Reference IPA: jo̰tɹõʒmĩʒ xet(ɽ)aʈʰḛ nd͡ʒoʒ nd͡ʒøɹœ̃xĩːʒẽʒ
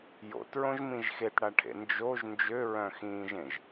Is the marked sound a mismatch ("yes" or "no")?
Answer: no